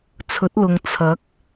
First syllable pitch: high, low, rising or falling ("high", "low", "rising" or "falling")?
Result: rising